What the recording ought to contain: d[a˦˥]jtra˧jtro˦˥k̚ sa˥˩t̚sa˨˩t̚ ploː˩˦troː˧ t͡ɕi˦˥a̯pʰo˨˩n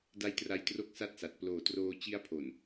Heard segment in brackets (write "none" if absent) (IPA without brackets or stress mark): a˦˥